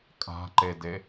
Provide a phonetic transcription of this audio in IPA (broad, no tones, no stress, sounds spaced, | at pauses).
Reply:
kʼ a̤ ǃ e d e